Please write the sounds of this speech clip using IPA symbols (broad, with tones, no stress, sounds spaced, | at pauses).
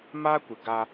m aː˦ kʷ ɪ˨ ɡ a˦